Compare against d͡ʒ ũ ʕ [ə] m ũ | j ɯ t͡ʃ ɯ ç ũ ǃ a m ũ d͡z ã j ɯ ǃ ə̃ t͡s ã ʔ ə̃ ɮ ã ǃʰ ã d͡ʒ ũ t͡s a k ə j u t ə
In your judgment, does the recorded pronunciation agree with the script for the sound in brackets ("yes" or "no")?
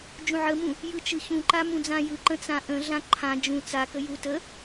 yes